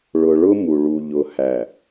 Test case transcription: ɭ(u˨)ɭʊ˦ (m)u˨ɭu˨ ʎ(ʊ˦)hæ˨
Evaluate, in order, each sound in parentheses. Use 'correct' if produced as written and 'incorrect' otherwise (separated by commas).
incorrect, correct, incorrect